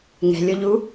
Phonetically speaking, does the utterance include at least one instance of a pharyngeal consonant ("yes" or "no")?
no